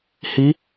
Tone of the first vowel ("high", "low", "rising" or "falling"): rising